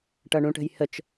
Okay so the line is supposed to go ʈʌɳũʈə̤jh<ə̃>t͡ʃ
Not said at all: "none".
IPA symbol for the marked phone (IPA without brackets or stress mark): ə